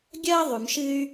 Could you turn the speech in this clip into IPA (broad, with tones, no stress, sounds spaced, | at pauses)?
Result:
ɡʲ ɐː˥ ðˤ ʉ˩ m ʃ ɨ˧ y̯